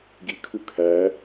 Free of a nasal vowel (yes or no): yes